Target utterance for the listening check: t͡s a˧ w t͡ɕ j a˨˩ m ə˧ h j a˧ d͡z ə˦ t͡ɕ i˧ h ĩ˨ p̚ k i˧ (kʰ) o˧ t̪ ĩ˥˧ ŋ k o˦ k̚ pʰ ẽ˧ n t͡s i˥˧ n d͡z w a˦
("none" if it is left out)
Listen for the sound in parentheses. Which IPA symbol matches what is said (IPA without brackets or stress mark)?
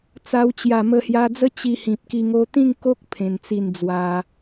ŋ